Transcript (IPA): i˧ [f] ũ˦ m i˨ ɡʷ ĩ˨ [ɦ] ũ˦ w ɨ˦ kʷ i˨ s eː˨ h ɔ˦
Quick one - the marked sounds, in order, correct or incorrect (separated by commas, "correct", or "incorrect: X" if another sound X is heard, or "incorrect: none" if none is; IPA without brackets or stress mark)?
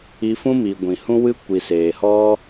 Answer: correct, incorrect: h